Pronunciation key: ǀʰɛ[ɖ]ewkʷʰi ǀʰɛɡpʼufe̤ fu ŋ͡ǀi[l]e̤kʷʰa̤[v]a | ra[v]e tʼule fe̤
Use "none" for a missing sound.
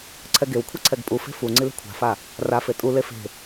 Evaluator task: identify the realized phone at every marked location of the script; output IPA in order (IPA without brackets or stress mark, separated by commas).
ɡ, l, f, f